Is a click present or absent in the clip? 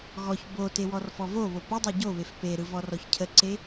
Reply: present